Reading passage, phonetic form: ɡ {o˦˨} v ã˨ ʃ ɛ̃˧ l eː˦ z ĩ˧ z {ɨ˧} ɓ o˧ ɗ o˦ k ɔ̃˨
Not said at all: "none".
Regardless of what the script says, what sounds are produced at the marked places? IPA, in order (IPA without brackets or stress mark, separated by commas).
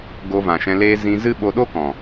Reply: o˧, ɨ˦